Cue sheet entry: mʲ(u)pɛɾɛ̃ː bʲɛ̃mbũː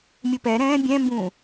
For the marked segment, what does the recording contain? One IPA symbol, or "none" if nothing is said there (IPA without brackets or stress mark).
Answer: u